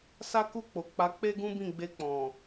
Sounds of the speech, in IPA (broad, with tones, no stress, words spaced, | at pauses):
sa˦ku˦˨k͡po˨ k͡pa˨˦k͡pe˦ɡũ˦ bĩ˦˨ɡ͡be˧k͡pɔ̃˨